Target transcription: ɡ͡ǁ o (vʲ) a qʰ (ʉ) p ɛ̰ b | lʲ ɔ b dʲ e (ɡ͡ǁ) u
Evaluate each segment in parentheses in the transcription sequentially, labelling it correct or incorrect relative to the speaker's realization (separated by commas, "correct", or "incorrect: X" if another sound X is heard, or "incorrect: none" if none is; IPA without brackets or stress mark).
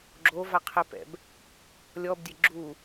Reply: incorrect: v, incorrect: ɘ, correct